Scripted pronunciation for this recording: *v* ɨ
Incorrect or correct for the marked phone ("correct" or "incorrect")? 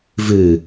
correct